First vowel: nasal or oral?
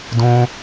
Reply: nasal